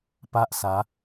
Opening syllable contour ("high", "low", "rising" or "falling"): high